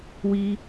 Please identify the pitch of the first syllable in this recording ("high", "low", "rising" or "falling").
high